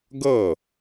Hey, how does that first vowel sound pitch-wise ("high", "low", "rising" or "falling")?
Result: falling